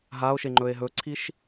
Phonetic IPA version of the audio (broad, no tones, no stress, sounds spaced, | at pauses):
ɦ a o̯ ʃ e ŋ͡ǃ ɵ e̯ ɦ ɵ ǀʰ i ʃ